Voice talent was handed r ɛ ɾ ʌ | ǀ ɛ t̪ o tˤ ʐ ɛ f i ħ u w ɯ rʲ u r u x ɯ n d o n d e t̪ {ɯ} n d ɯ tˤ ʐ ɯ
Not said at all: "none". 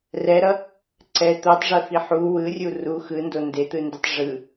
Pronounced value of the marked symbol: ɯ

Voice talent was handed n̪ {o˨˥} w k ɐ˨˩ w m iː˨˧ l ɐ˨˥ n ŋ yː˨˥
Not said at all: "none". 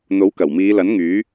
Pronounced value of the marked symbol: o˨˥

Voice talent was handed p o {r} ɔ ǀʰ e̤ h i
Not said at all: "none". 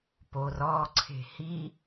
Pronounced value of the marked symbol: r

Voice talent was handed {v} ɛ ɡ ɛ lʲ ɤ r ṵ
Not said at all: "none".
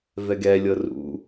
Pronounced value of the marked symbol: v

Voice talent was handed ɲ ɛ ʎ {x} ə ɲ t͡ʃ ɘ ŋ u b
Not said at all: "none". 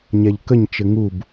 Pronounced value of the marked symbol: k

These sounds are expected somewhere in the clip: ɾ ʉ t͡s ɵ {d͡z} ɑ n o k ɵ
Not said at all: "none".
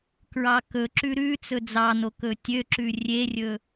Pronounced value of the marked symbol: d͡z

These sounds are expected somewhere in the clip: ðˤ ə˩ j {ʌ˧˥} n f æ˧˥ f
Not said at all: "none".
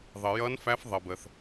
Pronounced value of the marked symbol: ʌ˧˥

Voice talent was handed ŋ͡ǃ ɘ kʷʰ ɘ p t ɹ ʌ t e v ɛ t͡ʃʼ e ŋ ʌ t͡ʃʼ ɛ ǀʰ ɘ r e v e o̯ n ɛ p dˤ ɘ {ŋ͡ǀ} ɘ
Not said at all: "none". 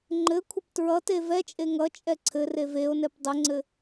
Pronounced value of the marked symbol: ŋ͡ǀ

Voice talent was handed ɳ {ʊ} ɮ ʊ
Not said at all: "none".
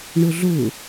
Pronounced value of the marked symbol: ʊ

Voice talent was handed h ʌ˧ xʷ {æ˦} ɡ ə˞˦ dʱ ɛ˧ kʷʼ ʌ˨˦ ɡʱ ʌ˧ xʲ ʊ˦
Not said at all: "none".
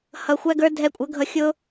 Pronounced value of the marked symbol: æ˦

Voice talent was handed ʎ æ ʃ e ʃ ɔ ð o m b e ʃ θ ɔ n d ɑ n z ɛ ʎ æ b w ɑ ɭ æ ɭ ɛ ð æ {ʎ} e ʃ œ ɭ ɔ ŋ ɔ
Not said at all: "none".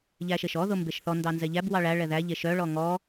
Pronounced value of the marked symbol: ʎ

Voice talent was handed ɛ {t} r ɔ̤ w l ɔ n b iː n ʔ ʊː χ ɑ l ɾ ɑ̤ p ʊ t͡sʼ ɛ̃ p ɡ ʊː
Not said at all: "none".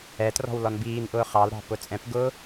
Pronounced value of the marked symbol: t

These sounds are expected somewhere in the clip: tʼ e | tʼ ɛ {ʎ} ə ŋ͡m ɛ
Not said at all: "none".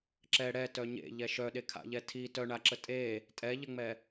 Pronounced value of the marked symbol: ʎ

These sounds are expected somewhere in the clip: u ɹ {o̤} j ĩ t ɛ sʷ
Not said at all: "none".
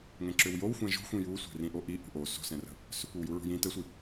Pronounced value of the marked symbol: ṳ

